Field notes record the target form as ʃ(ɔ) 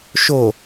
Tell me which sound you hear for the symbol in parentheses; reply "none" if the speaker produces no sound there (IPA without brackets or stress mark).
o